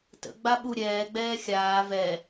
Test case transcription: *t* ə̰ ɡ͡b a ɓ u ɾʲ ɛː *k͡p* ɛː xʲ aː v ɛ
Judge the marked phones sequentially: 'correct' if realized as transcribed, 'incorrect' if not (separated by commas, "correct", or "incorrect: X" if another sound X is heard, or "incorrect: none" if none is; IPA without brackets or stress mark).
correct, incorrect: ɡ͡b